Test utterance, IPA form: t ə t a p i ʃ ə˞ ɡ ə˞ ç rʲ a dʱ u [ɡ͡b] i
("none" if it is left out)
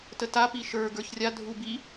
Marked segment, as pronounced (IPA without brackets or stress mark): b